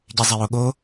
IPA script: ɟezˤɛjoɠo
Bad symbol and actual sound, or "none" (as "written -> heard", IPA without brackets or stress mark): none